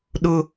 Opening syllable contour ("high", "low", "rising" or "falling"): high